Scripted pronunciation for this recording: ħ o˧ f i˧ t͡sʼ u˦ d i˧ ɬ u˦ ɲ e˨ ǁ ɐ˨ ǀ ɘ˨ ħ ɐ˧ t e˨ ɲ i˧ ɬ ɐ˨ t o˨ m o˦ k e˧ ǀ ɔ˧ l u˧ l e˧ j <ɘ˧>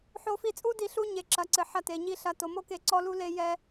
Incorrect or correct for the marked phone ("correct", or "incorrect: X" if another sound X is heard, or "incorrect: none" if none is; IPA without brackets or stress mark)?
incorrect: ɛ˧